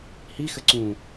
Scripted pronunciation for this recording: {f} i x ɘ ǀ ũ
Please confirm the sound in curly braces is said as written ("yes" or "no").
no